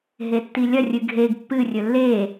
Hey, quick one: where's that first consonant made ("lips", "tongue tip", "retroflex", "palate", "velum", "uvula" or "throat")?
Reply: throat